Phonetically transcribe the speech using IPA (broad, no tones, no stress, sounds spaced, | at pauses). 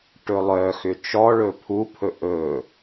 ʈ ɵ lˠ œ x ʏ t͡ʃ ɔ ɭ ɵ pʰ u pʰ ɵ ʔ ɵ